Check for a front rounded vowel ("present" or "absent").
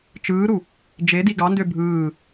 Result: present